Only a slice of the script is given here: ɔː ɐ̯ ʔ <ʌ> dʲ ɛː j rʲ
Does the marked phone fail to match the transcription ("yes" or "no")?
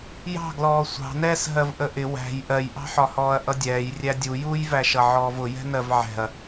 no